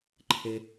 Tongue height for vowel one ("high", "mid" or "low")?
mid